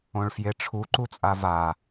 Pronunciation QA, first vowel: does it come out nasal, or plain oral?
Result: nasal